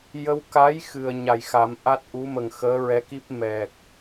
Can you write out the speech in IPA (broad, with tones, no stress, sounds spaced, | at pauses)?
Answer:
j ə˧ w k a˧˥ j x ɨ˨˩ ə̯ ɲ a˨˩ j x a˨˩˦ m ʔ a˦˥ t̚ ʔ u˧˥ m ə˨˩ ŋ x əː˧˥ ɹ ɛ˧˥ k i˦˥ p̚ m ɛ˨˩ k̚